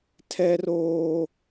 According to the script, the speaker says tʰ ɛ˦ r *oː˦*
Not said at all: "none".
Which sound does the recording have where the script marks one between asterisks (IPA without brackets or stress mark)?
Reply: oː˦